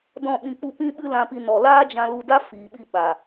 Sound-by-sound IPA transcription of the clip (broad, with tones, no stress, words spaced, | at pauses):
dɔ̃˦˨ɓĩ˧k͡pu˦ pĩ˦ɓɨ˦lã˧pi˧ nɔ˨laː˦d͡ʒã˧lu˧ da˦fiː˨ɓi˧ ɓa˨